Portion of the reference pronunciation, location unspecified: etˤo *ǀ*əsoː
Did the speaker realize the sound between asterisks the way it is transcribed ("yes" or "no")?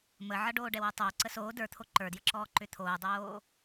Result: yes